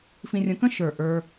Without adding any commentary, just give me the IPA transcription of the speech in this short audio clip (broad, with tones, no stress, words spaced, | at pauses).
fĩ˧rʲə̃˧kə̃˥ ʃə˞˧˩ʔə˞˧